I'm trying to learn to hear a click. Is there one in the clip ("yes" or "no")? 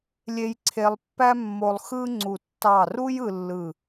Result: yes